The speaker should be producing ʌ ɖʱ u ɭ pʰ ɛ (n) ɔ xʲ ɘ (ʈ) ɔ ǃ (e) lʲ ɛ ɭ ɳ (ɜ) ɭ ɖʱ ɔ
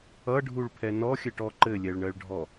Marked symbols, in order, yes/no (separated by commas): yes, yes, no, yes